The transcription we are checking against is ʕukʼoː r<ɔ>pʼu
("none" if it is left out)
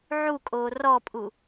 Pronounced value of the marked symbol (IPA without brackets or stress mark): ɔ